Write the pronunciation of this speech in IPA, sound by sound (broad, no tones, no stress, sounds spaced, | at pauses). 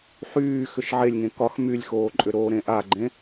ħ yː x ʏ ʃ ʕ e lʲ ŋ ẽ k ɒ x m y lʲ x oː ǃʼ ʏ ɾ oː ɾ ẽ ʔ a ɡ͡ǃ ẽ